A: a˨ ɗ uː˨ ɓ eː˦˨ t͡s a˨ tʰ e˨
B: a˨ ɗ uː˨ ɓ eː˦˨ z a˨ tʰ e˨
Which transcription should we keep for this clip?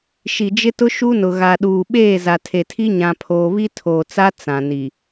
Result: B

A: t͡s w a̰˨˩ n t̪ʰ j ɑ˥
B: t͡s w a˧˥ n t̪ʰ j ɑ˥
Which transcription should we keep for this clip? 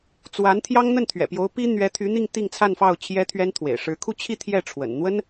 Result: B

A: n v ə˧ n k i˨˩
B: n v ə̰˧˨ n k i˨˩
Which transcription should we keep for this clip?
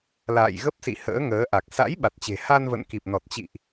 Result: B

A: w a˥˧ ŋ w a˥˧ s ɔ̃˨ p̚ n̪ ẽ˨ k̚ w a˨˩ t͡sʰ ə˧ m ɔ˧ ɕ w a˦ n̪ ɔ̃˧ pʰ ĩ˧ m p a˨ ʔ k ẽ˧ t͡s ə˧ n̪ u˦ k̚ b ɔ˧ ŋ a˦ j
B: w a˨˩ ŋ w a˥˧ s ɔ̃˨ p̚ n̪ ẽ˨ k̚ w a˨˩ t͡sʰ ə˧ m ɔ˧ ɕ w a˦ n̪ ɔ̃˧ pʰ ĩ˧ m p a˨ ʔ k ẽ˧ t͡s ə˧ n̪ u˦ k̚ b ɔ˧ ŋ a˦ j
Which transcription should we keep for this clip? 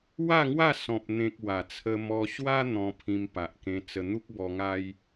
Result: A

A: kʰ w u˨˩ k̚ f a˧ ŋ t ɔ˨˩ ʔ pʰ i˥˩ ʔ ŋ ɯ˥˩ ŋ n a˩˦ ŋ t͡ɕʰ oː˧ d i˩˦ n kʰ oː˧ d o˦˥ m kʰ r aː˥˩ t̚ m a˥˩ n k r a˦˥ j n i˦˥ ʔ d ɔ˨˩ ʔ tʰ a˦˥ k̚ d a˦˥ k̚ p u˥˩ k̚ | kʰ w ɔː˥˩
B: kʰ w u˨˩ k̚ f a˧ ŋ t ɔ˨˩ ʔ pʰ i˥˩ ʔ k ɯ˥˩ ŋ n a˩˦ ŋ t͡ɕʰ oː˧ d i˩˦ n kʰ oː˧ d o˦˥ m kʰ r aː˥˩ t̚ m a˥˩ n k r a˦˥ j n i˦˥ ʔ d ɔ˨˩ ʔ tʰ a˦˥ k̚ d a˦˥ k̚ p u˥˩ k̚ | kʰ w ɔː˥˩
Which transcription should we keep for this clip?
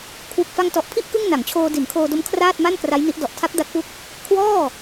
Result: B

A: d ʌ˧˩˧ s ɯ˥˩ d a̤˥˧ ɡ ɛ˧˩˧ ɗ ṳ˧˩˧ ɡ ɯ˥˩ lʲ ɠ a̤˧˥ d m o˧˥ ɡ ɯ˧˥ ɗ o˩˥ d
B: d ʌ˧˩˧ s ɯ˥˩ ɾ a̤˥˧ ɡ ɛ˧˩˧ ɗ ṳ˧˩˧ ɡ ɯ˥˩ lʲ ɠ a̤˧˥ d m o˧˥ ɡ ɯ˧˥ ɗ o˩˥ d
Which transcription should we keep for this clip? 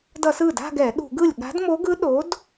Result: A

